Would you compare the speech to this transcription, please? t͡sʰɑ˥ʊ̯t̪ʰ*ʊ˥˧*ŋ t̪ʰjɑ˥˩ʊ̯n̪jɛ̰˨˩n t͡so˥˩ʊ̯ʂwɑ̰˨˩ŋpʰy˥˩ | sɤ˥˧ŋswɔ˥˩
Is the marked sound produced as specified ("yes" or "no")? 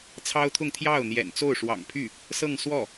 yes